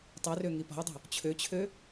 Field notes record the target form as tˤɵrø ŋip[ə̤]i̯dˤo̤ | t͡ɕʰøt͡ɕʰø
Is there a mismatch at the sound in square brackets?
yes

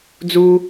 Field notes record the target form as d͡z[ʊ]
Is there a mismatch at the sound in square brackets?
yes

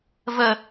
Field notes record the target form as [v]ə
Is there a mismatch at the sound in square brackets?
no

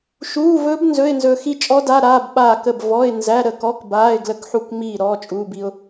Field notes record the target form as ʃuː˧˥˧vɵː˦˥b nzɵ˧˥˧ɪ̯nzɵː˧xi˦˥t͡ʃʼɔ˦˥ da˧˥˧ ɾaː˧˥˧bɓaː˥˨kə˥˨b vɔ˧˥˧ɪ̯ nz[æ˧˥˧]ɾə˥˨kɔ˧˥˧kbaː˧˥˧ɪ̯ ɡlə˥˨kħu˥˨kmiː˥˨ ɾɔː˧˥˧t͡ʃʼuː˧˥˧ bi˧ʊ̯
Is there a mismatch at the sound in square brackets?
no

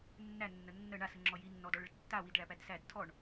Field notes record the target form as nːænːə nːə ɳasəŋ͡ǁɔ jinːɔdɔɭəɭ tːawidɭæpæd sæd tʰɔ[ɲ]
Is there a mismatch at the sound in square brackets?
yes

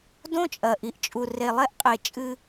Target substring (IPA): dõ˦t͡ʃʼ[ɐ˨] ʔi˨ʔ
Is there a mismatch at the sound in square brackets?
no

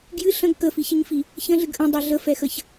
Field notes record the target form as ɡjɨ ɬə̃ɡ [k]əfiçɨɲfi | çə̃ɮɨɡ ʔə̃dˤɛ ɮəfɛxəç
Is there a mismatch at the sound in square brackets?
no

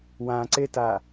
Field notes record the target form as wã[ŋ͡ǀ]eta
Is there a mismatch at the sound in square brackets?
yes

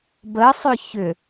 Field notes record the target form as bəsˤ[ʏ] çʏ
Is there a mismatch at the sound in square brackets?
no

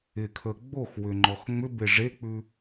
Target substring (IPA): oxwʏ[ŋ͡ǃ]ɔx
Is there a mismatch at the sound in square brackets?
no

